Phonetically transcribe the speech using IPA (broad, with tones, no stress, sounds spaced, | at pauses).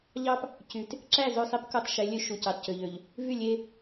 ʎ ɑ˦ p | c y˨ t | ǁ æ˦˨ z ø˦˨ sˤ i˦ p k o˦ tˤ ʃ e˨˦ lʲ ø˦ ʃ u˨ c ɑ˨ t c ø˨ ʎ ø˨ ʎ | v y˦˨ lʲ e˦